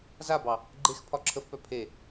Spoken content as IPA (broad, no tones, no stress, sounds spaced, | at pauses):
z a b ɑ | ɡ͡ǃ e x pʰ ɒ ǁʰ ə f p œ pʰ e